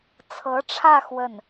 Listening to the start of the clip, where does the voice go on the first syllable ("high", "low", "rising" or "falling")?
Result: rising